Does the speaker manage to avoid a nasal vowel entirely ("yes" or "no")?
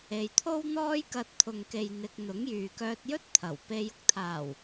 yes